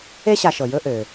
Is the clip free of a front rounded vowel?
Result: no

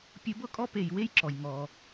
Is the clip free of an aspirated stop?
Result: yes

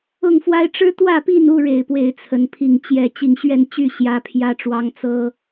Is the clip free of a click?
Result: yes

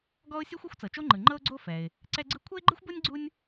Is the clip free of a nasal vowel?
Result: yes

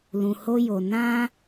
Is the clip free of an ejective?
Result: yes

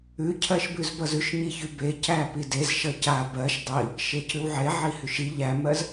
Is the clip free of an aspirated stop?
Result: no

